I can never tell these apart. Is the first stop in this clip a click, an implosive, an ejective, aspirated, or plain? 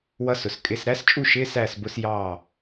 ejective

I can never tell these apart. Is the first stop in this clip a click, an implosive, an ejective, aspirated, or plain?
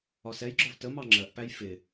click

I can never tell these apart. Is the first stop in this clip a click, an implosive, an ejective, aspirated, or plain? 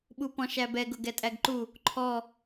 implosive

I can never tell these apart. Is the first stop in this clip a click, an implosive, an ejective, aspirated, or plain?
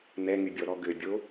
plain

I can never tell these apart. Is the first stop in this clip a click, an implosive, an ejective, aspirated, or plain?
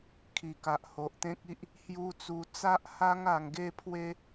aspirated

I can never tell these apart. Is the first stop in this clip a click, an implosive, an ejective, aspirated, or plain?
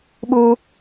implosive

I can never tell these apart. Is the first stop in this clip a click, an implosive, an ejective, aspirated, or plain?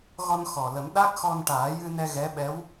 implosive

